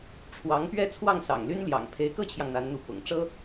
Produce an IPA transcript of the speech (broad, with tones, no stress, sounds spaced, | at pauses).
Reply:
ʈ͡ʂʰ w ɑ˧˥ ŋ p ɥ ɛ˥˧ t͡sʰ w ɑ˥˩ ŋ s ɑ̰˨˩ ŋ l y˥ n l j ɑ̰˨˩ ŋ pʰ e˧˥ ɪ̯ k ɤ˥ t͡ɕʰ j ɑ˨ ŋ n̪ a˧˥ n n̪ u˧˥ p ʊ̰˨˩ ŋ ʈ͡ʂ ɤ˥